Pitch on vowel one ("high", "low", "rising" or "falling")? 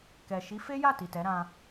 low